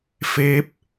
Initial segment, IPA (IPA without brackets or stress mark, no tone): f